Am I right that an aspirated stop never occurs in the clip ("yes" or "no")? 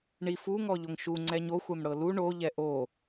yes